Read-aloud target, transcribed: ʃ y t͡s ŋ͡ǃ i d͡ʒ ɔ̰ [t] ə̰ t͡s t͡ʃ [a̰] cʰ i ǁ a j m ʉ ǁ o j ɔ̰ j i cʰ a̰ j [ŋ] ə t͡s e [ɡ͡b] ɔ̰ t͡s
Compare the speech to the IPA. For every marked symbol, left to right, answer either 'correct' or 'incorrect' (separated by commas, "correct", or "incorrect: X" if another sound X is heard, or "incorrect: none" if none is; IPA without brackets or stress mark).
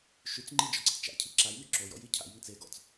incorrect: ǀ, correct, correct, incorrect: ɡ